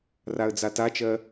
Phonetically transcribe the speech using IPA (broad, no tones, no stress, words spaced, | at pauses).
raə̯d͡zatat͡ʃɜ